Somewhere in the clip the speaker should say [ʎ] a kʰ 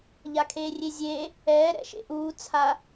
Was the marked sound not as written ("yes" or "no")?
no